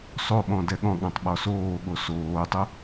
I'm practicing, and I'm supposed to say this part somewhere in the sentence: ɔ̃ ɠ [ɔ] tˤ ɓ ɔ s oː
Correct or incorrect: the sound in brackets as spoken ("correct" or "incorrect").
incorrect